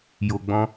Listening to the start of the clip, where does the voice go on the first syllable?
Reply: low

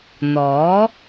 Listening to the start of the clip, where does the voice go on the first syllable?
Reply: rising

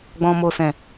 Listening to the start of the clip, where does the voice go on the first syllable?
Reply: low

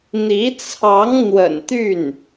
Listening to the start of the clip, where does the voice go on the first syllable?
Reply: rising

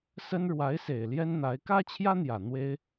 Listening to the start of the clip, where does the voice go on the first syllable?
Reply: high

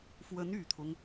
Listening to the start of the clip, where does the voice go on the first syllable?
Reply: rising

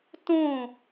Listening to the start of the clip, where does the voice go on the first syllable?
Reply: falling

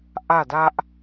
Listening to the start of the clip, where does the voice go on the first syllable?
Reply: falling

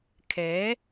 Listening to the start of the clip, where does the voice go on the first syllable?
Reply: rising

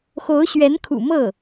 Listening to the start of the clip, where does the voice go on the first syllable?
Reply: rising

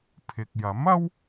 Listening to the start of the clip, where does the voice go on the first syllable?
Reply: low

